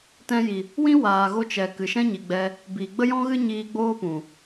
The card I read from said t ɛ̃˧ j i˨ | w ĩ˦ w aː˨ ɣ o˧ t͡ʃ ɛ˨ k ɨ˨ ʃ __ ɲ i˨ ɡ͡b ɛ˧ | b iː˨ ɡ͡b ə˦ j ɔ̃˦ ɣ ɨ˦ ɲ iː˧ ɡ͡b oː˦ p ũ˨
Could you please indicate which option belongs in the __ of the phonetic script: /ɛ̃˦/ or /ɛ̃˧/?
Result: ɛ̃˦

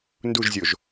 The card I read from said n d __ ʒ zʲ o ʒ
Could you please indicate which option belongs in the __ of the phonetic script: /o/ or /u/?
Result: u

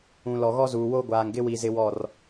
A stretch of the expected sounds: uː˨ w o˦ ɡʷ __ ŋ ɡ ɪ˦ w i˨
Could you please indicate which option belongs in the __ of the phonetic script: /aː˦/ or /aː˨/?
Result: aː˨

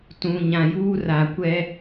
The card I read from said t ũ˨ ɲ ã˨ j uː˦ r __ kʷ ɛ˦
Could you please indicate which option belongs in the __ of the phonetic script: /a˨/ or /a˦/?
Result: a˨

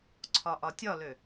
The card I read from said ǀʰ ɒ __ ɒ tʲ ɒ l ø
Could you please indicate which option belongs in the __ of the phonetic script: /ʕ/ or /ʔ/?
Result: ʔ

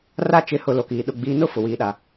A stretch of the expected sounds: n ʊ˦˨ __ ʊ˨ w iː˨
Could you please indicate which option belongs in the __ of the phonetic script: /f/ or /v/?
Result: f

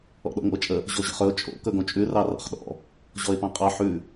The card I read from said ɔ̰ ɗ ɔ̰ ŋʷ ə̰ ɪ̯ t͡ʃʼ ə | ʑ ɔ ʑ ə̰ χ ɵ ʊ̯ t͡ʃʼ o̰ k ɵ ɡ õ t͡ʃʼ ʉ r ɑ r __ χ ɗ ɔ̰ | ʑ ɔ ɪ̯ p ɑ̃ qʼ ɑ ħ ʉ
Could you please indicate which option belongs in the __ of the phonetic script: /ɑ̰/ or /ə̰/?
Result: ɑ̰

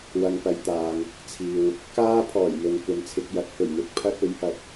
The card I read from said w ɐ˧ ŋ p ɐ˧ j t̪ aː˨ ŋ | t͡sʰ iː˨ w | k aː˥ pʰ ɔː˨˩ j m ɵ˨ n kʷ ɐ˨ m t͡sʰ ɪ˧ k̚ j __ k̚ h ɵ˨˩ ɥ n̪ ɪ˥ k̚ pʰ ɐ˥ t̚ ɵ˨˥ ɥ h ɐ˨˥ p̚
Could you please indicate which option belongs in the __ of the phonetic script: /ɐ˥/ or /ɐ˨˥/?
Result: ɐ˨˥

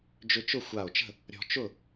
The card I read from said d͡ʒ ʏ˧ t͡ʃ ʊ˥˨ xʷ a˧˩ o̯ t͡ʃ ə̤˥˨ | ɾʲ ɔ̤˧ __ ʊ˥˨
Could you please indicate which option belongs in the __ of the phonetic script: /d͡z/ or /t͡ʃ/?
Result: t͡ʃ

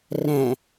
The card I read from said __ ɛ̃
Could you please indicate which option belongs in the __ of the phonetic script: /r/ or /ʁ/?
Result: r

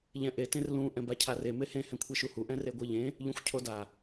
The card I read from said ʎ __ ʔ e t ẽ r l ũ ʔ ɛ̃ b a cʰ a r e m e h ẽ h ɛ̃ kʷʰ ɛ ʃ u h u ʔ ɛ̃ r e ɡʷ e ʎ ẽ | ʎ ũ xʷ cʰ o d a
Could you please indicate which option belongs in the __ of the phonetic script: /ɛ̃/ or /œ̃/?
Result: ɛ̃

